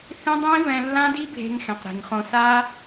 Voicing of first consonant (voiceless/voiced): voiceless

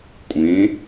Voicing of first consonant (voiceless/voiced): voiceless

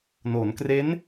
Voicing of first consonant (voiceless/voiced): voiced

